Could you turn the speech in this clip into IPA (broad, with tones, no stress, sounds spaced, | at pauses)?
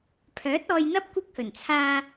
pʰ œː˨˥ t̚ ɔː˧ j n̪ ɐ˥ p̚ kʷ ɪ˥ k̚ h ɵ˨˩ n t͡sʰ aː˧